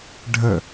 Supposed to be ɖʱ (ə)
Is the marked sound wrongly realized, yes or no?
no